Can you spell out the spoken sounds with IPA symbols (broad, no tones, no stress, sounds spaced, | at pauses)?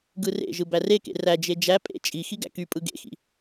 ɡ ɯ r ḛ ʒ ɯ b æ r e k ḛ r æ d͡ʒ e d͡ʒ æ pʼ ḛ t͡ʃʼ i x i ɡ æ̰ k y pʼ ɯ ɡ ḛ x ḭ